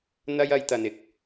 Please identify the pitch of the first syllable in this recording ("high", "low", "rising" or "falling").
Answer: high